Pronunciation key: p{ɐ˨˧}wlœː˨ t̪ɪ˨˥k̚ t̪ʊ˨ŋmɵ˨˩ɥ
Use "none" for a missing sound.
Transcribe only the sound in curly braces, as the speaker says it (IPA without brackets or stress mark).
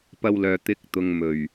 ɐ˧